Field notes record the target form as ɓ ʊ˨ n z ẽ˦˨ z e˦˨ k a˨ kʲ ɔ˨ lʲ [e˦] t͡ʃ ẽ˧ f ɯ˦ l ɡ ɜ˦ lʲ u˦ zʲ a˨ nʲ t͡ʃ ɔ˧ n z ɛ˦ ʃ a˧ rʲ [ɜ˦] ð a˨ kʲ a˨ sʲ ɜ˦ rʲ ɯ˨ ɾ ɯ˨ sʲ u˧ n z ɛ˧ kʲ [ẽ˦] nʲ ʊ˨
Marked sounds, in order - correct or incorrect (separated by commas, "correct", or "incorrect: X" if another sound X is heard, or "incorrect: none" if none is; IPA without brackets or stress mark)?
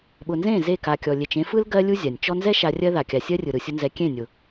incorrect: e˨, correct, incorrect: ẽ˦˨